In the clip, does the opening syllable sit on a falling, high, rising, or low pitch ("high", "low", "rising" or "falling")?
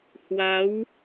rising